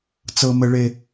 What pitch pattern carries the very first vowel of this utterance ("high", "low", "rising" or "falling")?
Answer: high